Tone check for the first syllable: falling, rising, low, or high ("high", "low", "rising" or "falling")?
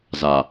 low